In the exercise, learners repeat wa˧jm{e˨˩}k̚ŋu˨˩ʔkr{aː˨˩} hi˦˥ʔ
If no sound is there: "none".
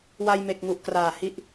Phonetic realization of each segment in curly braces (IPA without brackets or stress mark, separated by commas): e˨˩, aː˨˩